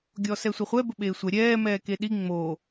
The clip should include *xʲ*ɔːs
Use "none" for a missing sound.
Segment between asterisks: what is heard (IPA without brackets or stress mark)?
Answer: ɡʲ